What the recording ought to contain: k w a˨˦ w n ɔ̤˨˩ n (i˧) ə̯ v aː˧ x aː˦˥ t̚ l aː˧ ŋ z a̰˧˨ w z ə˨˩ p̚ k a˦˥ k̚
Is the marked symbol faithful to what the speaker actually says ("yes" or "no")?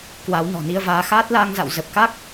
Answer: yes